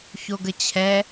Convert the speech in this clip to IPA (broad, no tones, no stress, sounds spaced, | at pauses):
ç o ɡ ə t͡ɕʰ ɛ